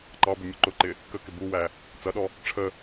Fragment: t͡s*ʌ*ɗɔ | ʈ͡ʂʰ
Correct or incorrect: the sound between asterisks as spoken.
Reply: correct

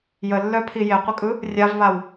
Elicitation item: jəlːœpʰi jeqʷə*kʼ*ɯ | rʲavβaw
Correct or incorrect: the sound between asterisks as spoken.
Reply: correct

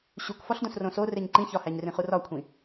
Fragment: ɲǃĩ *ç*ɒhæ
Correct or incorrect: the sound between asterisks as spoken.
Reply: correct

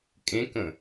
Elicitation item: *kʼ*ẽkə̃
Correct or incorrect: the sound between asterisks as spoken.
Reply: correct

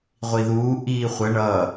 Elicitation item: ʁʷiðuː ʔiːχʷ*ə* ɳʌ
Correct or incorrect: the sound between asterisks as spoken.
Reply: correct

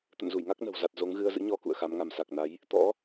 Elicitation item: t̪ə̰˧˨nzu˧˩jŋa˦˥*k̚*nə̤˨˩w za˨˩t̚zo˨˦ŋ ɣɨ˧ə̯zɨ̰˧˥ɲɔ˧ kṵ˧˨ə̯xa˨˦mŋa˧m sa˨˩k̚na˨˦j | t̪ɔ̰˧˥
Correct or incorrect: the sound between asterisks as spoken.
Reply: correct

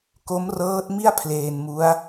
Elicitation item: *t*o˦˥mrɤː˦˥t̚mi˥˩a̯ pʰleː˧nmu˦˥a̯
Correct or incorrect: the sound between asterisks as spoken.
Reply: incorrect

